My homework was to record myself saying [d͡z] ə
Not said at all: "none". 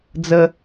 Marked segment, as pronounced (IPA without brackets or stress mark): d͡z